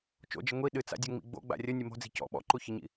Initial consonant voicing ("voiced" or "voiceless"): voiceless